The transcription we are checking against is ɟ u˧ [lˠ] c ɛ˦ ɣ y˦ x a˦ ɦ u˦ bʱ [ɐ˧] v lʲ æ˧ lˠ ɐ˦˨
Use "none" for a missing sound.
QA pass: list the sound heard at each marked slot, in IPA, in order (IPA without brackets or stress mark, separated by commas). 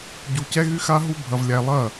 none, ɐ˧